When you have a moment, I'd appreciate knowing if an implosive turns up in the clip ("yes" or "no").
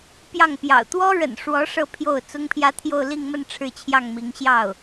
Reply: no